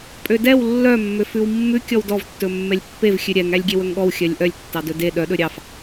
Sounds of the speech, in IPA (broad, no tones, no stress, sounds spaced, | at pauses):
pʼ ø d ɛ w lː œ mː ø f ʉ w mː ʉ kʲ ɔ w d ɔ v tː ɵ mː ɛ lʲ pː e v xʲ ʉ ɾʲ ɛ ŋ æ lʲ ɡʲ e w ɵ ŋ ɠ ɔ w xʲ œ lʲ ʔ œ lʲ tː ɑ d ɵ d e ɗ œ ɗ ɵ ɾʲ ɑ f